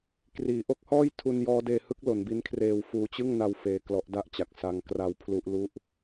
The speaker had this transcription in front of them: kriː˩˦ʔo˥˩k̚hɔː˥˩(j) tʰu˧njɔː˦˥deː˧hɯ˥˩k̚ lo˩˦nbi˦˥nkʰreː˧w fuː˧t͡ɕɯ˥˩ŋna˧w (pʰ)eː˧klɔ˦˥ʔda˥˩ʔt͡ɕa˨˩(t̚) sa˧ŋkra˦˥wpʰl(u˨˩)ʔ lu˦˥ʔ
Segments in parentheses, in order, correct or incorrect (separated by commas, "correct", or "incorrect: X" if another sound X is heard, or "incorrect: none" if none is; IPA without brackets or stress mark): correct, incorrect: f, incorrect: k̚, incorrect: u˦˥